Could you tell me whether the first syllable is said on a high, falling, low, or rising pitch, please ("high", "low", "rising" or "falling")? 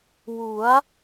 rising